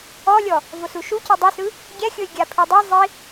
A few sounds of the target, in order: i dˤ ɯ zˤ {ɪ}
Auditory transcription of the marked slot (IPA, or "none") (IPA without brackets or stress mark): i